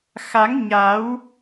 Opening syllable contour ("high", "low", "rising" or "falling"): rising